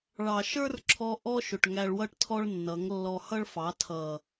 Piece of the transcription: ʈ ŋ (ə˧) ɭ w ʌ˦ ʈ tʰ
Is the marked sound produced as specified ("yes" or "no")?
no